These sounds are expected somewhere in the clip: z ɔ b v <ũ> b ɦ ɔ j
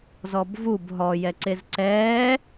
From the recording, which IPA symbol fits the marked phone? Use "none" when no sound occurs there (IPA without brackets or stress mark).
u